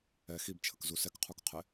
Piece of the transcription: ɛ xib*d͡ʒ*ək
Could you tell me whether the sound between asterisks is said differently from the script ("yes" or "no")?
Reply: yes